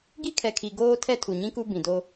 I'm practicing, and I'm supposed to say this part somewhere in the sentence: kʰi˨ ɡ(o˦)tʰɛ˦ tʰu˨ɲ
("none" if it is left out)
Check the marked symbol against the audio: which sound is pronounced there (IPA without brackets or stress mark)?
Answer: oː˦